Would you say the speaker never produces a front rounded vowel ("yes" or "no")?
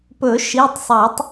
yes